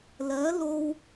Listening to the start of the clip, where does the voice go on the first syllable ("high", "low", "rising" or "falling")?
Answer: rising